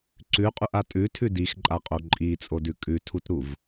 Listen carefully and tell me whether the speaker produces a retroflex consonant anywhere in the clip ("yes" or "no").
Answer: no